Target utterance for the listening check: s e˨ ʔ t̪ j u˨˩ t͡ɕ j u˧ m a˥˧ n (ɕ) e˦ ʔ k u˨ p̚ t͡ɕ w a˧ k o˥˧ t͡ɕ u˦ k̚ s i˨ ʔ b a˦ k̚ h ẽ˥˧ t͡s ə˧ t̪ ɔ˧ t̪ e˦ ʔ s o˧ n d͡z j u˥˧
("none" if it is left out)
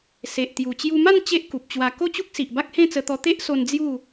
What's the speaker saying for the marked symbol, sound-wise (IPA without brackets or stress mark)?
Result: t͡ɕ